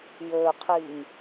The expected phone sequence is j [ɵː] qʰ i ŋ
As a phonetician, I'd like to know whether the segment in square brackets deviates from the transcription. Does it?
no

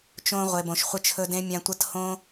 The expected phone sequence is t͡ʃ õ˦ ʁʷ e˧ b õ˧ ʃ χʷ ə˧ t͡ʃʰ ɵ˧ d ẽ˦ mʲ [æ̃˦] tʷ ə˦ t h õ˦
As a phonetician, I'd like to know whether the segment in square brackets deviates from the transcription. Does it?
yes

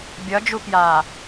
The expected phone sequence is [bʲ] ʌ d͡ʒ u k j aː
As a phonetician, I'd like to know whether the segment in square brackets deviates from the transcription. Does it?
no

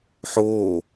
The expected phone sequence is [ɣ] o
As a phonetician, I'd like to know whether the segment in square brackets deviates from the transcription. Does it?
yes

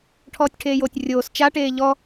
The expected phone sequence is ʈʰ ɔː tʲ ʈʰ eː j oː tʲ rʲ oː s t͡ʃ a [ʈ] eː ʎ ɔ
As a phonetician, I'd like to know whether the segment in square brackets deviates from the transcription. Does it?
no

